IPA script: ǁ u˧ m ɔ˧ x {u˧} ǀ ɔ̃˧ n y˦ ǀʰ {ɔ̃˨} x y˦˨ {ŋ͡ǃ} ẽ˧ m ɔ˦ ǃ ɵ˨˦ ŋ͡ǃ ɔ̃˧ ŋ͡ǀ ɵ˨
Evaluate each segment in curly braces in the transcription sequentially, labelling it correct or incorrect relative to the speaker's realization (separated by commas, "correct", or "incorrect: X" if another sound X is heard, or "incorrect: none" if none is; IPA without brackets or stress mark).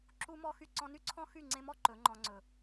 incorrect: y˧, incorrect: ɔ̃˦, incorrect: ŋ͡ǀ